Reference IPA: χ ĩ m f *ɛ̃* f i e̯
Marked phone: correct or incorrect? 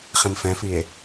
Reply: correct